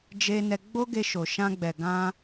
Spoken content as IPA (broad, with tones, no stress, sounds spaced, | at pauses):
d͡ʒ e˧ n ɛ˧ ɡ͡b o˦ ɡ e˧ ʃ o˨ ʃ ã˧ ɡ͡b ɛ˨ ɡ ã˧